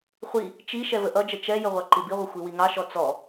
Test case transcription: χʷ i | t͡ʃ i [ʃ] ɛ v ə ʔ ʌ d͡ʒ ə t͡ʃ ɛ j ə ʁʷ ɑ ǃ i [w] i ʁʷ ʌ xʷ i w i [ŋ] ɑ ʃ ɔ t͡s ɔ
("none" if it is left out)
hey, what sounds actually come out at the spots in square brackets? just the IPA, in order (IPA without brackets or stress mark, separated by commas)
ʃ, b, ŋ